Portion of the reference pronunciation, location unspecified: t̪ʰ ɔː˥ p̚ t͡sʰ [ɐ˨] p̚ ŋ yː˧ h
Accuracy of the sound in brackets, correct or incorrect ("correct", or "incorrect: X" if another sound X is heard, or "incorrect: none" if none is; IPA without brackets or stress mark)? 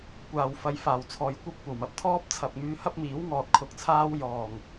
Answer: correct